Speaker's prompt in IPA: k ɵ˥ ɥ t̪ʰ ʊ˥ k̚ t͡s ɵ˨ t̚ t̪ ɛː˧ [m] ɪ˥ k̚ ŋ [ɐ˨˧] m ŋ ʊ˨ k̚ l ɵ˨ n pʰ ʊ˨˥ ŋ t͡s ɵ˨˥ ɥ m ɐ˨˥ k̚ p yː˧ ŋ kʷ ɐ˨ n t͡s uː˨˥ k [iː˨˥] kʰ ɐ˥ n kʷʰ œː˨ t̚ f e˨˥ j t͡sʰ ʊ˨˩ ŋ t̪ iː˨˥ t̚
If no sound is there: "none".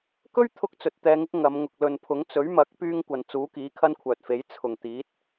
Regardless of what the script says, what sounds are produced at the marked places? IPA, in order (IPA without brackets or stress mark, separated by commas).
ŋ, ɐ˨˧, iː˨˥